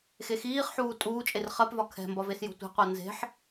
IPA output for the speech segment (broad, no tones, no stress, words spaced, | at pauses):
xexiːχħuː tʼuːt͡ʃʼer χɜpvɒ kʰɛ̤mbɒ vesjo̤tʷe̤qʷɜ nze̤ħ